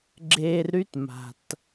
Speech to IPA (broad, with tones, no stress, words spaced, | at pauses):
ɡ͡ǁe˧rɾy˦tma̤˨t